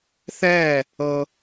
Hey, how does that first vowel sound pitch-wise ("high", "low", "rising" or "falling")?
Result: falling